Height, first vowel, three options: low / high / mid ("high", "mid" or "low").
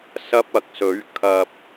low